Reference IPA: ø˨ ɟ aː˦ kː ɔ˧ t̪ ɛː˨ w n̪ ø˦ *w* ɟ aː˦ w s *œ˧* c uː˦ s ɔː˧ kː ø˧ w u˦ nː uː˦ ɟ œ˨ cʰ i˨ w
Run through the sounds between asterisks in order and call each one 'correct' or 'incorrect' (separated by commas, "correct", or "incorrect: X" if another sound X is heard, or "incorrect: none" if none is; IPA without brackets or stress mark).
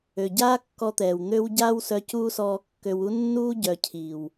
correct, correct